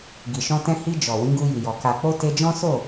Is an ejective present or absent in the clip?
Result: absent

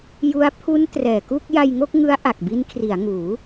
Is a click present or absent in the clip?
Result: absent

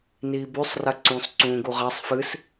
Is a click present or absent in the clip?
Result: present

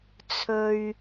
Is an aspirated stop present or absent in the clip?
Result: present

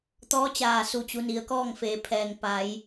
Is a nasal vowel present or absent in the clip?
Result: absent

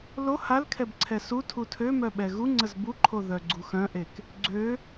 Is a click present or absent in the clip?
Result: present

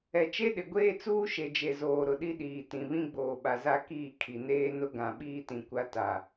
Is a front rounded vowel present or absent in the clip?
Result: absent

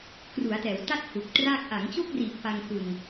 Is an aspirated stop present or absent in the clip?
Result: absent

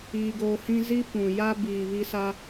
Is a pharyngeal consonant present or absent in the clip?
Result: absent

